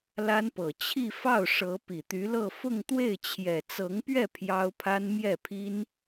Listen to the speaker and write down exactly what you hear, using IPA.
la˥npɤ˨˩ t͡ɕʰi˥˧fɑ˥˩ʊ̯ʂɤ˧˥ pi˨˩t̪y˧˥lɤ˥˧ fʊ˥˧ŋt̪we˥˩ɪ̯ t͡ɕʰjɛ˨˩t͡sɤ˧˥ŋpɥɛ˥˩ pʰjɑ˥ʊ̯pʰa˥n mjɛ˥˩pʰi˥n

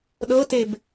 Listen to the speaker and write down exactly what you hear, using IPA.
ɗɤteb

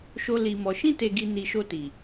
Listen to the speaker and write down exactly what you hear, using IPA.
ʃo˧li˨mɔ˨ ʃĩ˧te˨ɡi˨ ni˨ʃo˧ ti˨

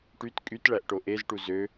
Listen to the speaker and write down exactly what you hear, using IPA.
ʈyt kʼytɭæʔʈo ʔezʈu zø

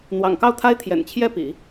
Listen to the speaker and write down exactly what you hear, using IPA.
n̪wɑ̰˨˩ŋkɑ˥˩ʊ̯t̪ʰa˥ɪ̯ t̪ʰjɛ̰˨˩nt͡ɕʰjɛ˥˩pḭ˨˩˦

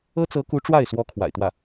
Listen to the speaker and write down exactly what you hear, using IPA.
ɤ˥t͡sɤ˧˥ku˧˥ ʈ͡ʂwa˥˩ɪ̯swɔ˧˥ kʰwa̰˨˩ɪ̯t̪wä˥˩

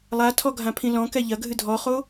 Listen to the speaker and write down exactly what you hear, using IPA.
lˠatʰɔɡʱãpʰĩ lɔ̃kɛ ʎɐɡʱɨ dʱɔχo

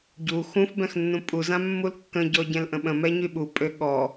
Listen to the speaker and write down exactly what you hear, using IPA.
ɟu xũf bɛ̃xnːũpʼuzã mːulkːə̃ɟɔ ɟɛ̃lʔə̃ɓə̃mɛ ɲyɓupʼø ɠɔ

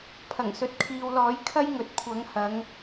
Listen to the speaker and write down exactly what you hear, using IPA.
pʰɐ˨˩ŋsɵ˨t̚kʰiː˨wlɔː˨˥j kʰɐ˥jŋɵ˨t̚kʷʰɐ˨˥ŋ hɐ˨˧ŋ

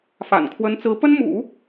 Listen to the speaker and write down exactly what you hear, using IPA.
fa̰˨˩n kʰwə˧˥nt͡sɹ̩˧˥ pə˥n mṵ˨˩˦

